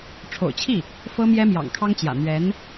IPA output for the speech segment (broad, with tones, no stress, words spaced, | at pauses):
ʈ͡ʂʰo̰˨˩ʊ̯t͡ɕʰi˥˩ | fɤ˥mjɛ˥ mjɑ̰˨˩ŋkʰɑ˥ŋt͡ɕjä̰˨˩ n̪ɥɛ˧˥n